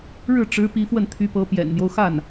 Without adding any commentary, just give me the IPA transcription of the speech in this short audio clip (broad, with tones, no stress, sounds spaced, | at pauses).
ɻ ɻ̩˥˩ ʈ͡ʂ ɻ̩˧˥ p i˧˥ f w ə˥˩ n t̪ʰ y˧˥ p ɤ˧˥ p j ɛ̰˨˩ n n̪ j o˦ ʊ̯ x a˥˩ n